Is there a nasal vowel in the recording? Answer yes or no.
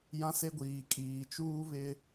yes